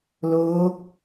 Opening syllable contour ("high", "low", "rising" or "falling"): rising